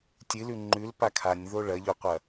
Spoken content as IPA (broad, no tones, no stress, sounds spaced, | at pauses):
tʲ ɨ l ʉ ŋ͡ǃ ʉ l p a kʰ a nʲ ð o ɭ ɐ ʎ o qʷ ɐ